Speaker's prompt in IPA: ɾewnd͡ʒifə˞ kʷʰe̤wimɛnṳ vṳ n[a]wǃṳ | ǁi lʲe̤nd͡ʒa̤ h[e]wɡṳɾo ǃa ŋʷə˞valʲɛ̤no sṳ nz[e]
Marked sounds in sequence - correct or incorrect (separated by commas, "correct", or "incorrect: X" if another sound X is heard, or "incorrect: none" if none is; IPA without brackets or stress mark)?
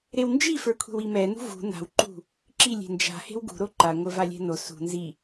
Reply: incorrect: a̤, incorrect: e̤, incorrect: i